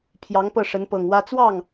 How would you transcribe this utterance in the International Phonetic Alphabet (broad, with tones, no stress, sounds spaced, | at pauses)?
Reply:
pʰ j ɑ˧˥ ŋ p ɤ˥˩ ʂ ə˧˥ n p ɤ˨˩ ŋ w ä˥ t͡s w ɑ˥˩ ŋ